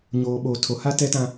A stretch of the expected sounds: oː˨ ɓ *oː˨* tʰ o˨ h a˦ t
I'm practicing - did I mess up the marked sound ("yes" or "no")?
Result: no